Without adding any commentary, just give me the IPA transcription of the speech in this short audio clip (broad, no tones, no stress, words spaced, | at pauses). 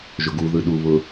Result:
ʒʊɡu ðɯɗu βʊ